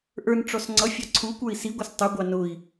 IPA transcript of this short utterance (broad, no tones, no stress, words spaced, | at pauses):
ʔə˞nʈ͡ʂɔs ŋ͡ǀʌfʲɑ ǀʰukʷə˞i̯ siɡʷʌs tˤuɡʷɑ nʊi̯